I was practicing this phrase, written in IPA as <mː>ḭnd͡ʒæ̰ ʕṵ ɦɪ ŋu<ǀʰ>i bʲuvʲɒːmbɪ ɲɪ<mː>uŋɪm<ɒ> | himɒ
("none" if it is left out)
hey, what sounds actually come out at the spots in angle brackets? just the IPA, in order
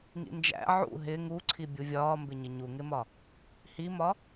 ŋ, ǀʰ, ɲ, ɒ

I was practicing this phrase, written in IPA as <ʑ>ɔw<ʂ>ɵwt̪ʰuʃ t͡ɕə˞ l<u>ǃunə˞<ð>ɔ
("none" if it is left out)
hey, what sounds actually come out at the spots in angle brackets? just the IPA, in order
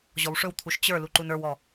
ʑ, ʂ, u, w

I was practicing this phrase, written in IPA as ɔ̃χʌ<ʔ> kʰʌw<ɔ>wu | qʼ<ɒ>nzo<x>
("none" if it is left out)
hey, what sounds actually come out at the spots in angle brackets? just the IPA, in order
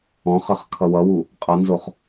χ, ʌ, ʌ, χ

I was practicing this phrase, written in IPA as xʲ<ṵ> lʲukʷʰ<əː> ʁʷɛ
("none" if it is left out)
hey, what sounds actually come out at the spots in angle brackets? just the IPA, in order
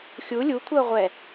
u, əː

